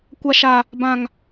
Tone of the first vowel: high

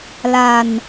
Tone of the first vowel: low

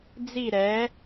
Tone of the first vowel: falling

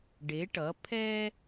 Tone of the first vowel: rising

